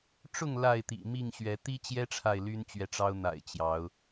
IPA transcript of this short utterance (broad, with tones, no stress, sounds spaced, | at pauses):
ʈ͡ʂ ʊ˥˨ ŋ l a˥˨ ɪ̯ t̪ ḭ˨˩ m i˥˨ ŋ ɕ ɥ ɛ˨˦ t̪ i˦ t͡ɕ j ɛ˦ ʈ͡ʂʰ a˨ ɪ̯ l y˦ n t͡ɕ ɥ ɛ˨ ʈ͡ʂ ɑ˦ ʊ̯ n̪ a̰˨˩ ɪ̯ t͡ɕ j ɑ˨˦ ʊ̯